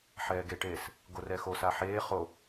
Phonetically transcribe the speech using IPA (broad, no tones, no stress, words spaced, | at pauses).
ħɛːɡeʈeːs | ɡorɛxo saħeː χo